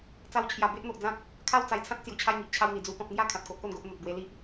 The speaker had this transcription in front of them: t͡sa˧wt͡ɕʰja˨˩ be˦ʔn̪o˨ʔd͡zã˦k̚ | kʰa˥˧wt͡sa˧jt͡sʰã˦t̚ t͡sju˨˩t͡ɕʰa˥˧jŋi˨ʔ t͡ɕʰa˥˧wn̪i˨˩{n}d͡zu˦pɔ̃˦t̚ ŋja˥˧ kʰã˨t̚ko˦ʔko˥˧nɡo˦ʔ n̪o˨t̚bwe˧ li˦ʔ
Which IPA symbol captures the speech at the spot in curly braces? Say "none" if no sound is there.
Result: none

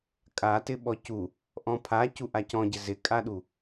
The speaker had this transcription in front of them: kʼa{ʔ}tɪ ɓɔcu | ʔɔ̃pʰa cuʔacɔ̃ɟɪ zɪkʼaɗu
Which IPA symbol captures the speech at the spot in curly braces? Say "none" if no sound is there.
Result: none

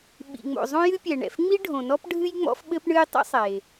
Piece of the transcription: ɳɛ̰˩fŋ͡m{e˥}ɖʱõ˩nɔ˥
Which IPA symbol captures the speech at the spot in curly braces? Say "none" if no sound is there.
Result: i˥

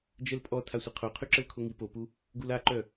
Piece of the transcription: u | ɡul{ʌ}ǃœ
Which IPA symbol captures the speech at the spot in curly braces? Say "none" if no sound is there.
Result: a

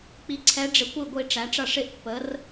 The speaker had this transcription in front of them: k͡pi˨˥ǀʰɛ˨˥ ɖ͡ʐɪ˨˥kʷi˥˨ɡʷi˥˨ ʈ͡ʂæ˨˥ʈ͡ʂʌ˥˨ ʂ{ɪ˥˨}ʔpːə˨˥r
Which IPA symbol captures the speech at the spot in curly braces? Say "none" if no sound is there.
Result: ɪ˥˨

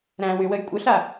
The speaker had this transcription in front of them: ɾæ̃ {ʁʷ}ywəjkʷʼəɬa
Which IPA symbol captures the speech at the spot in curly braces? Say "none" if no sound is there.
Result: w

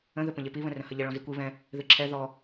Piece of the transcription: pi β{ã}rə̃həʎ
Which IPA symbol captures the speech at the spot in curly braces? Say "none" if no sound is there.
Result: ə̃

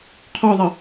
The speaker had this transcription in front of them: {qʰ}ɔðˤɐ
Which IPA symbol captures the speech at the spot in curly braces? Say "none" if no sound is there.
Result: qʰ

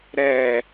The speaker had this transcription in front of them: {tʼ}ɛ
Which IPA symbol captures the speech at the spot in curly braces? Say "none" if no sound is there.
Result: ɾ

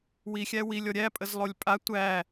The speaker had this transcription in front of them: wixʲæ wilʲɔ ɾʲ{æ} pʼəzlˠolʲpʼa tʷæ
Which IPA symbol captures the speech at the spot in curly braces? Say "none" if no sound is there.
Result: æ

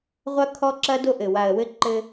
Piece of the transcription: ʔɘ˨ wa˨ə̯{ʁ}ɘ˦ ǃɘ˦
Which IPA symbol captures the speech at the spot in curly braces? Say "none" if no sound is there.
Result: w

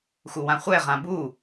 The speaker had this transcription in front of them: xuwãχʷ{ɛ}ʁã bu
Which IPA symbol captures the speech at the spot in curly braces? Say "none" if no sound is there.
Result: ɛ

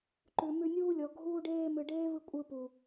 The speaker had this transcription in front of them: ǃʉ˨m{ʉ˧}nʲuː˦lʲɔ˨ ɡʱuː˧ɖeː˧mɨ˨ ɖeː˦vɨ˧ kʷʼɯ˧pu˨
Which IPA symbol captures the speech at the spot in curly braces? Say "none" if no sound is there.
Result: ʉ˧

